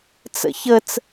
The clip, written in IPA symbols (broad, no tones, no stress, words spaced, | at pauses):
t͡sə̰çət͡s